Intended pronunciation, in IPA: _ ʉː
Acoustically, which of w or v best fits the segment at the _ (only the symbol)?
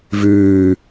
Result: v